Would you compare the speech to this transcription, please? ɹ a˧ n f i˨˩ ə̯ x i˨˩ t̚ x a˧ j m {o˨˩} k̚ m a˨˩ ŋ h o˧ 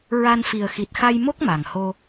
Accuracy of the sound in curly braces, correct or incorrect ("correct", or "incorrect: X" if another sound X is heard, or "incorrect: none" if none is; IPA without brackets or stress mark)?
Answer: incorrect: o˦˥